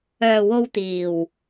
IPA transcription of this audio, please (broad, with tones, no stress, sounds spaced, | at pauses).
œː˨ w o˧ w t̪ iː˨˩ w